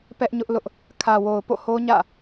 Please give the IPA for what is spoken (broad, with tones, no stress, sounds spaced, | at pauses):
p ɛ˦ ʔ ɲ ʊ˦ ʔ l ʊ˦ ʔ | kʰ ä˨ w o˨ ʊ̯ p o̰˦˨ h o˦ ɲ ä̰˦˨